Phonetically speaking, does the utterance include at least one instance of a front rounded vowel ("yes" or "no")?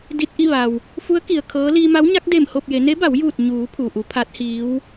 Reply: no